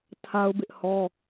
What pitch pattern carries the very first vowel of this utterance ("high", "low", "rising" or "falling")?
high